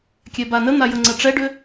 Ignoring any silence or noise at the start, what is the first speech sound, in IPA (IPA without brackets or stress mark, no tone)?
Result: kʲ